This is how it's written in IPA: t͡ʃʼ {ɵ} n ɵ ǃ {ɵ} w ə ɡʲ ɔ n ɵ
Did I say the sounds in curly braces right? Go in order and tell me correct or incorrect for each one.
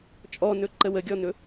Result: incorrect, incorrect

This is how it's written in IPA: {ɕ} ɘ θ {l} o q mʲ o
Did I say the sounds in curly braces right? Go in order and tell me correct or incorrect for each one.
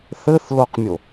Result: incorrect, correct

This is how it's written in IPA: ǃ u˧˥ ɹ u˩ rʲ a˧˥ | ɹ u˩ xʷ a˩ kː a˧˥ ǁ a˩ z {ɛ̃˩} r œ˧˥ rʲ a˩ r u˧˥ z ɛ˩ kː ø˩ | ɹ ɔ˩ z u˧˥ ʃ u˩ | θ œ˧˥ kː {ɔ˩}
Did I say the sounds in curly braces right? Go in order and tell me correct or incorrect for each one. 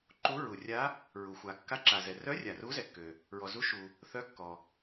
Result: incorrect, correct

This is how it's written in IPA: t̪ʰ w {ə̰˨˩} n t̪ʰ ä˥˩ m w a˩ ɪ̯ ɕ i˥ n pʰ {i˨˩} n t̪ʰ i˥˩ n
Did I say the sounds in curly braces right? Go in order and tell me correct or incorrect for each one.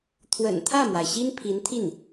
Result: correct, incorrect

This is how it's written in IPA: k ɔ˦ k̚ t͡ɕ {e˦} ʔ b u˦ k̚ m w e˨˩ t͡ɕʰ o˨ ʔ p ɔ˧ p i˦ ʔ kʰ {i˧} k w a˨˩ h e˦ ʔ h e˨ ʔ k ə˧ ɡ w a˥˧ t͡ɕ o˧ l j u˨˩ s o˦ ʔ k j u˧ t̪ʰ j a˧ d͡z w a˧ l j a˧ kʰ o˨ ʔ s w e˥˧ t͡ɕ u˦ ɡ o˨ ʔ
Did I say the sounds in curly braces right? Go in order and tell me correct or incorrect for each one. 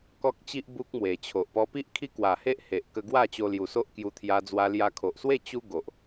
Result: incorrect, incorrect

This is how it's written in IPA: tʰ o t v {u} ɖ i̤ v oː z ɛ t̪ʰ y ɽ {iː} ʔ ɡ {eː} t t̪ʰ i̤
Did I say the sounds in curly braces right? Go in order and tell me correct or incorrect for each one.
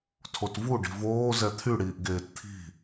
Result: correct, correct, correct

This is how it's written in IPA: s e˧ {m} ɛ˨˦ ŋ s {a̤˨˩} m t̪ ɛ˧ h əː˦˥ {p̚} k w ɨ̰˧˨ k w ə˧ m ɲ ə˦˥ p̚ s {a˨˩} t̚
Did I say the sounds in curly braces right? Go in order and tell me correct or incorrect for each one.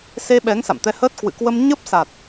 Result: incorrect, incorrect, incorrect, correct

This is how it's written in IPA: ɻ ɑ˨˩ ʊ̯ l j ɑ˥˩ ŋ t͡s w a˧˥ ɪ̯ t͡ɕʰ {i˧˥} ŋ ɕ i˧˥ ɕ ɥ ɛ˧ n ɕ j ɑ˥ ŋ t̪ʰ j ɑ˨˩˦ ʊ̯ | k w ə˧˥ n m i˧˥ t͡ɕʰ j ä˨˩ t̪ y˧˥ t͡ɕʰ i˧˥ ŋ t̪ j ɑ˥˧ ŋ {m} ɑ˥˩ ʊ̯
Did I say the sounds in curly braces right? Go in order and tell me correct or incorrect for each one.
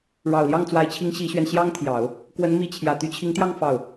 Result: correct, incorrect

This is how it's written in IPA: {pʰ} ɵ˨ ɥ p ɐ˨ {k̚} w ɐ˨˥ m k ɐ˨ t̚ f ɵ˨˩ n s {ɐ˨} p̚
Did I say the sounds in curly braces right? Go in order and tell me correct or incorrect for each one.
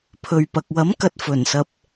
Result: correct, correct, correct

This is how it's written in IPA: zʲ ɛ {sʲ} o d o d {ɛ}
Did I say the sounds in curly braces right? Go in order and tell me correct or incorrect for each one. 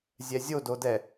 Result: incorrect, correct

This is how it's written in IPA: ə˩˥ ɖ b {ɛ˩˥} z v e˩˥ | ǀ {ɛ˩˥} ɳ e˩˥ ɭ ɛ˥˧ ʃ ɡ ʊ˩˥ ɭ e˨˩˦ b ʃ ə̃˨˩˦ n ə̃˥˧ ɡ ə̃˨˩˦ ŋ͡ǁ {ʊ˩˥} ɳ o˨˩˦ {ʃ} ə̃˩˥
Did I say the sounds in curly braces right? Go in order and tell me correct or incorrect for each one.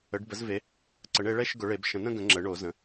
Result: incorrect, incorrect, incorrect, incorrect

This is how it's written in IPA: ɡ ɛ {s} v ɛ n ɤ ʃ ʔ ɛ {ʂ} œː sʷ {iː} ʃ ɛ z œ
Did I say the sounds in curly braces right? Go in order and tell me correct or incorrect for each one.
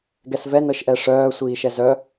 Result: correct, correct, correct

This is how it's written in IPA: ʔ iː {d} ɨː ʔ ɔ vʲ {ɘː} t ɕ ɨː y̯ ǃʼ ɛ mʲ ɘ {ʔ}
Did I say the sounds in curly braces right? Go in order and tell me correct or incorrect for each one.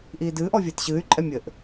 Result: correct, correct, correct

